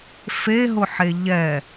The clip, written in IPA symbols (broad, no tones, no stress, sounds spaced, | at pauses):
f e ɦ ʊ ħ e ʎ ɛ